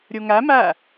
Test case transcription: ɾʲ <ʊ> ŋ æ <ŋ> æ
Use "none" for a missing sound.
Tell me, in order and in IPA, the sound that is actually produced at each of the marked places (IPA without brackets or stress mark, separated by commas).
u, m